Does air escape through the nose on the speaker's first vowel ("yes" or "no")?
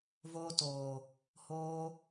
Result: no